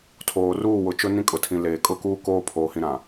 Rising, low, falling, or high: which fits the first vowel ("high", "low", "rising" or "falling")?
low